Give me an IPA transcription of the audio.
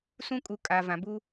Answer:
s ũ˦ kʼ u˨ kʼ a˨ v ã˨ b u˦

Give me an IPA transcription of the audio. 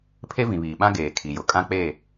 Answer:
pʰ e˦ v ĩ˨ β iː˨ ɓ ã˦ ɡ eː˨ kʰ i˨ j ʊ˨ kʼ ã˦ k͡p e˦˨

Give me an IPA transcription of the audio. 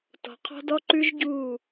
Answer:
t ɔ̤˨ qʰ ɔ̤˦ d ɔ˦ ǃ ʉ˦ ʒ ɟ uː˦˨

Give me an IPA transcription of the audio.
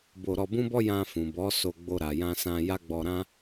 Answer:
b o˧ ɾ ɔ˧ b ũ˦ b ɔ˦ j ã˧ f ũ˨ b ɔ˨˦ s o˧ ɡ͡b o˧ ɾ a˨ j ã˧ s ã˧ j a˦ ɡ͡b ɔ˧ ɾ ã˦

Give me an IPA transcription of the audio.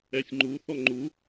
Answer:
ɛ sʲ ŋ͡ǃ u θ ɔ ŋ͡ǃ u

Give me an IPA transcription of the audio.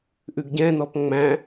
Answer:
ʔ ʉ ɡ ɟ ɛ̃ n ɔ p ŋ͡m æ̃

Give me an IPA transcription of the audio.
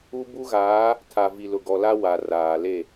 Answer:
u˦ b u˦ ɣ aː˨˦ | tʰ a˨ v i˨ l ʊ˨ ɡ ɔ˨ l a˦ w a˨ r aː˨ l e˦˨

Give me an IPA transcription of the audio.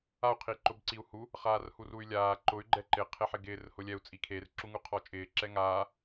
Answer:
a u̯ qʰ i ǃ ʊ b ǀ i u̯ h u | χ aː r h u r u y̯ lʲ aː ǃ ʊ y̯ ɡ͡ǃ ɛ ǃ ɪ qʰ e ħ ɪ ɡ ɪː r h ʊ lʲ ɛ u̯ t͡sʼ i kʰ e r ǁ u ŋ u qʰ ɔ t͡ʃʼ ɪː ǁ ɛ ŋ aː

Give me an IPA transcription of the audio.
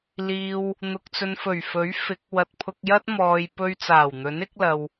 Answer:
l iː˧ w | n̪ ʊ˨ k̚ t͡s ɵ˨ n f ɵ˨˩ ɥ f ɵ˨˥ ɥ f ɪ˨˥ k̚ w ɐ˧ t̚ pʰ ʊ˧ k̚ j ɐ˥ t̚ m ɔː˨ j p ɵ˧ ɥ t͡s aː˨˩ w n̪ ɵ˨˥ n ɪ˨˥ k̚ l ɐ˨ w

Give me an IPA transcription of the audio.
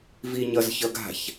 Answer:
v i ɲ ʌ z ç ʌ ɡ a̤ ç

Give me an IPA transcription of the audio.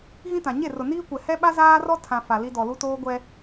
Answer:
ɣ ĩ˦ t ã˨ ɲ e˦˨ r ʊ˨ n iː˦ kʷ ɛ˨ h ɛ˦ ɓ a˦ z aː˦ r ɔ˦ tʰ ã˨ f a˨ l i˦ d ɔ˨ l u˦ t oː˦ ɡʷ ɛ˦

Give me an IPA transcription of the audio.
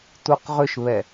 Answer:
t u q ʁ ʏ ʃ β ɛ

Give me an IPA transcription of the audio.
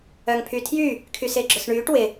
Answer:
œ ŋ pʰ y tʰ j y | kʰ y s ɪː ɡ͡ǁ œ s ɳ yː ʈ w ɪ

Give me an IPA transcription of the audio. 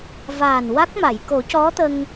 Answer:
v a˨˩ n w a˦˥ k̚ m a˨˩˨ j k o˨˩˦ c ɔ˧˥ t̪ ə˧ ŋ

